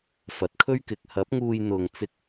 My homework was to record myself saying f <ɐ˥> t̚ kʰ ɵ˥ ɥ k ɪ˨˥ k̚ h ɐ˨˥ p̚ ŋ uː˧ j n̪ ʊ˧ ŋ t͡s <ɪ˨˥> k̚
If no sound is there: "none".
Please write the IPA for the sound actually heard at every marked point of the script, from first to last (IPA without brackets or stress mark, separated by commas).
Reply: ɐ˨˥, ɪ˥